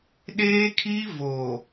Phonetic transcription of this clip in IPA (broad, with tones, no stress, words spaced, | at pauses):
ɗeː˦kʰi˦ vo˨